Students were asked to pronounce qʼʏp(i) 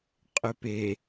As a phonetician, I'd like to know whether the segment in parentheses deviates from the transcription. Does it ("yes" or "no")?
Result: yes